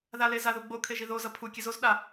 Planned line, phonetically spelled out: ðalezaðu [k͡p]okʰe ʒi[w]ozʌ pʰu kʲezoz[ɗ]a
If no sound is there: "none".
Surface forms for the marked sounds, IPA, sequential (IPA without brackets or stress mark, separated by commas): ɡ͡b, ð, ɗ